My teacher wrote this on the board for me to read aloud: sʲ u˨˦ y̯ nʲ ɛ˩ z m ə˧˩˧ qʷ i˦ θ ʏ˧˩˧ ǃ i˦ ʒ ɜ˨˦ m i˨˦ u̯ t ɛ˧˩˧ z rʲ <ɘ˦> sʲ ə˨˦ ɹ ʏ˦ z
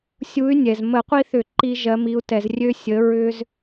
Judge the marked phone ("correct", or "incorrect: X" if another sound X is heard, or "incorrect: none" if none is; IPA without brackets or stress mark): incorrect: ø˦